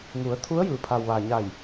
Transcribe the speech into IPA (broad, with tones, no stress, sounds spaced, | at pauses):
ŋ u˩˧ ə̯ t̪ʰ u˧˥ ə̯ j ɯː˩˧ pʰ a˩ w ʋ aː˩ ɲ a˧˩ j